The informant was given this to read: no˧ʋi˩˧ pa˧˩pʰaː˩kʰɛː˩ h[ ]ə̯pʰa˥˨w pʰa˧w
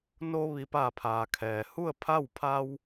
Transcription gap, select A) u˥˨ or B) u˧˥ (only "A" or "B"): A